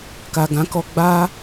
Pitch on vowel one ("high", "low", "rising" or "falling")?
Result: low